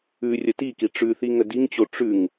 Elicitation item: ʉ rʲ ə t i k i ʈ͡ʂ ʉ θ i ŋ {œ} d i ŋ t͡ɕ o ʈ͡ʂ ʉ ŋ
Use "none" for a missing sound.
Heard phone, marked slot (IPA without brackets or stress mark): ə